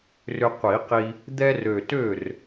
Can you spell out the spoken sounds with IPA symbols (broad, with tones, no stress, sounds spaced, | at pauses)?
r ʏ˧ qʷ i˨˩˦ q i˧ | d̪ ɛ˧ r ø˨˩ t ø˥˩ r